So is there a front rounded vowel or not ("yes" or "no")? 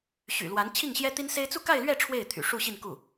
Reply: yes